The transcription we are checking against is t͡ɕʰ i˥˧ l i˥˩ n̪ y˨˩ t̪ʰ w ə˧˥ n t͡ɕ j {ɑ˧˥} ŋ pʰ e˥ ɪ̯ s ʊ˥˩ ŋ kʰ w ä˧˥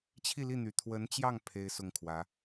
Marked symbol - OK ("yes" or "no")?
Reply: no